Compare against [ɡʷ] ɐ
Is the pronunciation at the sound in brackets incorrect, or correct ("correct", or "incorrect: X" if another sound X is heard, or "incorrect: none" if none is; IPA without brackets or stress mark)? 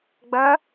incorrect: ɡ͡b